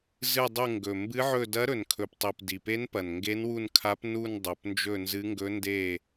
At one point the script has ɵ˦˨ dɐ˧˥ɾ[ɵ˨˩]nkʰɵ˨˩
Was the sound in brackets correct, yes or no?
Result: yes